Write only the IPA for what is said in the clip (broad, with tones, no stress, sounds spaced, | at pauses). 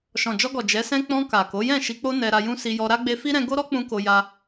ʃ ɔ̃˨ d͡ʒ ɔ˧ ɡ ɔ˨ d͡ʒ ɛ˨˦ s ɛ̃˦ k͡p ɔ̃˧ k a˨ k o˨˦ j ɛ̃˦˨ ʃ i˧ k͡p o˦ n ɛ˧ ɾ a˧ j ũ˦ s i˧ j ɔ˧ ɾ a˦ ɡ͡b e˧ f i˦ ɾ ɛ̃˧ ɡ o˦ ɾ ɔ˦ k͡p ũ˧ k o˧ j a˦